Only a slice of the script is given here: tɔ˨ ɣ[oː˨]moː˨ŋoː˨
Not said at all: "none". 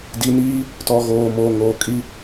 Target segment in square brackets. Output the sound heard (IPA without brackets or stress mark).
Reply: oː˨